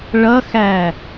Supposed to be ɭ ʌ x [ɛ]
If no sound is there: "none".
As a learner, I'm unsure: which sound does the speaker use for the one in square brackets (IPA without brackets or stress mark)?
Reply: æ